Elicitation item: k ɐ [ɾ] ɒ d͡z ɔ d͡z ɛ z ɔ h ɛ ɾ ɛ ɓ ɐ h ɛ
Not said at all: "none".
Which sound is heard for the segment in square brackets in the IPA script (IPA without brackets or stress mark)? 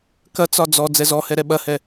t͡s